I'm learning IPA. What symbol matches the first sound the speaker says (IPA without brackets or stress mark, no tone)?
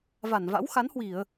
v